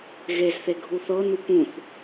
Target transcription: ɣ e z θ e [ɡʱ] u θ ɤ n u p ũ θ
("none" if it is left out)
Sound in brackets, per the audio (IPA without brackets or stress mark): ɡʱ